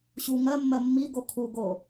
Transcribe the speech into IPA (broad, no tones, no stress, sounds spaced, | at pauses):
ɕ u ŋ ɜ mː ɜ mː i ɡ o kʰ u ɡ o